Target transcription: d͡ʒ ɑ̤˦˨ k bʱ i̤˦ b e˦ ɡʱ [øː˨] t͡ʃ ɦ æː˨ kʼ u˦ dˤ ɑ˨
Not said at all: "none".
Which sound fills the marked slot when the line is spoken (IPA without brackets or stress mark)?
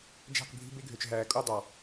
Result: ø˨